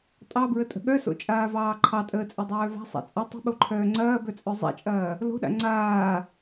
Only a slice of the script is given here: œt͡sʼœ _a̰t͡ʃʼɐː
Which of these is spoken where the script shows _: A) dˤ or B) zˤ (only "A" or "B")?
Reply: B